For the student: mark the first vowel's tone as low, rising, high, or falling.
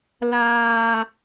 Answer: low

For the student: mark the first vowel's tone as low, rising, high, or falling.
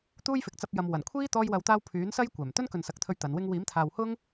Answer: high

